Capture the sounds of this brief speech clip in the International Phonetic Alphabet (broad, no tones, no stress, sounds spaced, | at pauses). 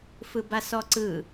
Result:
f ɯ b a s ɔ ǀ ɯ